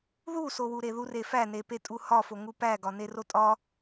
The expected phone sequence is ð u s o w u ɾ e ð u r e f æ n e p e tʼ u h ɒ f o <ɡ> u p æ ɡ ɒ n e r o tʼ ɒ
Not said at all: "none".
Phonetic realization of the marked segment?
ŋ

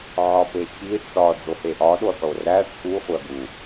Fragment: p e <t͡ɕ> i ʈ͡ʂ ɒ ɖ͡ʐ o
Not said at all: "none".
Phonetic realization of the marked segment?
t͡ɕ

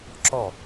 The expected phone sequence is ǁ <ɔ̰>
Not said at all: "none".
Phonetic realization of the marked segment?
ɔ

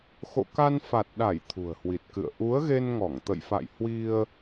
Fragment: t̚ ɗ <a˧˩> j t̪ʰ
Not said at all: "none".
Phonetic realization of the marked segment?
a˧˩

